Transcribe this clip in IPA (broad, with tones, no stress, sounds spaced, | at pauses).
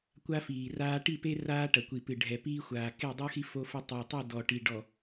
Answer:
kʷ a˦ f iː˨ r aː˦ ʈ i˦˨ p e˦ r aː˦ ʈ ɐ˨ kʷ i˨ p ɨ˨ ɖʱ ɛ˨ p iː˦ xʷ aː˨ k e˦˨ dˤ u˦ x i˦ f o˦ f ɘ˦ tˤ a˨ tˤ ɘ˦˨ d ɔ˨ ʈ i˨ ɖ ɔ˨